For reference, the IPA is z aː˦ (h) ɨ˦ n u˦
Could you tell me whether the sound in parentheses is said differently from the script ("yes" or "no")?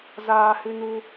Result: no